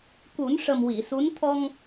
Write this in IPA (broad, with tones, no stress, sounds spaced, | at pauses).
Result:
k u˨˩˦ n ʂ ə˨˩ m w i˨˩˨ s u˧˥ n t̪ʰ ɔ˧ ŋ